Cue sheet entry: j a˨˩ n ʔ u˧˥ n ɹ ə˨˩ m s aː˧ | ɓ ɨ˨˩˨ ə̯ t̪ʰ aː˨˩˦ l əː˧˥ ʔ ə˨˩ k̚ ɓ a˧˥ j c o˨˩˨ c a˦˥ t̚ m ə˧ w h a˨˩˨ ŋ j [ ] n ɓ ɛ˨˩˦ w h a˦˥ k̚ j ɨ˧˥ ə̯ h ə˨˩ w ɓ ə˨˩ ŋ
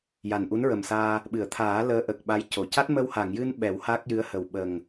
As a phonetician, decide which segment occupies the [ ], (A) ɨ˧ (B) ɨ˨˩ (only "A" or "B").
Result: A